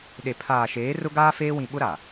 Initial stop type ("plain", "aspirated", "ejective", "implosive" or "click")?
implosive